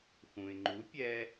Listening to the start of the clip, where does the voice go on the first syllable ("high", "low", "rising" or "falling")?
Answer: low